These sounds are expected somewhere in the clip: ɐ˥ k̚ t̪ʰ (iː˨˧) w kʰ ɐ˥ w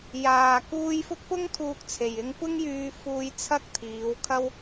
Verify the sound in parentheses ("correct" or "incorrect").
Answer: correct